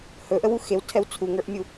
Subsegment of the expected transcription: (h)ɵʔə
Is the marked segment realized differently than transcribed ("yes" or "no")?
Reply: no